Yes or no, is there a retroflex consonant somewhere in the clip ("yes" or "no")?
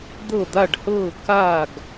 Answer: yes